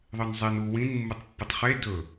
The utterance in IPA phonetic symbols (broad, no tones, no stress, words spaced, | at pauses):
ðˤɨnzˤen u wĩn mːutˤpːɨtˤχe dɵ